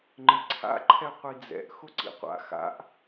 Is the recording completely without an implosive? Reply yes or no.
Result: yes